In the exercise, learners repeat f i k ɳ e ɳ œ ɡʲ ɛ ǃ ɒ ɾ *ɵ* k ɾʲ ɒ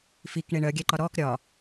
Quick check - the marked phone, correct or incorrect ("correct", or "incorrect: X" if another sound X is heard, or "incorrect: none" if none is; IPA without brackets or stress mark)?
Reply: incorrect: ɔ